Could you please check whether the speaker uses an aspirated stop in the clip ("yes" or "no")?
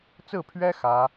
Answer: yes